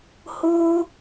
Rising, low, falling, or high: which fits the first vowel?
high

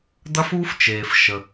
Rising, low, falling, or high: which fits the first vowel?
high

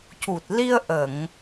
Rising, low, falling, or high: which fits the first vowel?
low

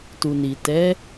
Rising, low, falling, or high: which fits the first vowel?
low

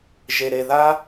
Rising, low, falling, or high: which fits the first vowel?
low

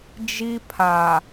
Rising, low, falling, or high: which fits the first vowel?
high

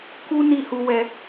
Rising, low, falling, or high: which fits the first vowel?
high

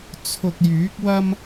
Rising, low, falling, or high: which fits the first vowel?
low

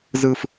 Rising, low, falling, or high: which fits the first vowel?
low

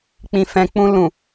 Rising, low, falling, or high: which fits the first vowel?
low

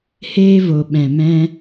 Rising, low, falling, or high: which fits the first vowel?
high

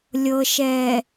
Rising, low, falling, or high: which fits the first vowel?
low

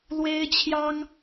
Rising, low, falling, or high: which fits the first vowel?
high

